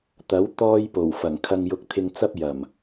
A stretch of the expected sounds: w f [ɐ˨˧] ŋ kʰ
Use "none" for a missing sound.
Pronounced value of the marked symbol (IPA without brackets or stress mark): ɐ˨˩